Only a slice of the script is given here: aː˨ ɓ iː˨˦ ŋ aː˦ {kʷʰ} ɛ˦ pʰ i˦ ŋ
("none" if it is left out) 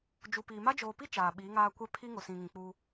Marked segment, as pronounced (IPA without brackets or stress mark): kʷ